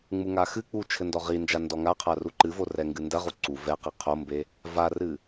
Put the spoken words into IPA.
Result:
ŋ͡m u ŋ a x ɨ k͡p u t͡ʃʰ ɘ n d ɔ ʁ i n d͡ʒ a n d ɔ ŋ a qʰ a r u ǃ ɨ v o r ɛ ŋ ɡ ɨ n d ɐ ʁ u ǀ u v ɛ q i qʰ o m b e | v a r ɨ

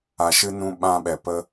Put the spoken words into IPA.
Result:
a˨ ʃ ɨ˧ n ũ˧ ɓ ã˧ ɓ ɛ˨ p ə˧

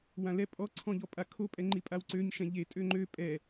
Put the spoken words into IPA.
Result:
w ã l ɛ pʼ ɔ ǀʰ ɔ̃ ʎ ɔ pʼ a kʰ o pʼ ɛ ŋ͡ǃ i pʼ a w ǀ ø ɲ ʃ ɛ̃ ʎ e tʼ ø ŋ͡ǃ ø pʼ ɛ

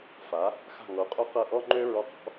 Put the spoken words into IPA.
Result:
f a˩˥ | x a̤˥˩ ŋ o˩˥ qʼ o˥ q ɤ˥˩ ʔ ɔ˥ ŋ͡ǃ ø˥ ɹ ɔ˧ q ɔ̤˩˥

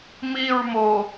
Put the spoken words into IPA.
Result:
m i ɹ m o

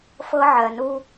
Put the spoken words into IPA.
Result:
f ɤ˦ ʕ ɜ˨ n u˦

